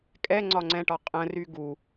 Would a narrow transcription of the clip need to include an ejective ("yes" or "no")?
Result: yes